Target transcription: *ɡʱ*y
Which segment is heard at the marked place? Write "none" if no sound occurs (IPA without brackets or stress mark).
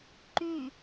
ǃ